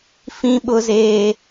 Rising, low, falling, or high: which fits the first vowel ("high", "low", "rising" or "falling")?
high